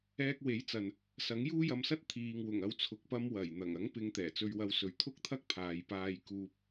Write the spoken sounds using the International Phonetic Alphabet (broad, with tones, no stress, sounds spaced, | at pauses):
ɛː˧ k̚ w e˨˥ j t͡s ɐ˨ n | s ɐ˨˥ ŋ j uː˥ j ɐ˧ m s ɐ˥ t̚ t̪ʰ iː˨ ŋ w ʊ˨˩ ŋ ɐ˨˧ w t͡sʰ ʊ˨ k̚ p ɐ˧ m w ɐ˨˩ j n̪ ɐ˨˩ ŋ ɐ˨˥ ŋ p ɪ˨˧ ŋ t̪ ɛː˨˩ t͡s ɵ˧ ɥ w ɐ˧ w s ɵ˨˥ ɥ t̪ʰ ʊ˥ k̚ t̪ʰ ɐ˥ k̚ pʰ aː˨ j p aː˧ j k uː˧ p̚